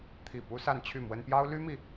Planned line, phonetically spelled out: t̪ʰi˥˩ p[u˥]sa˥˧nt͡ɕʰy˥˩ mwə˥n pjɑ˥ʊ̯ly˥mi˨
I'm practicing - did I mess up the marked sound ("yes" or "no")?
no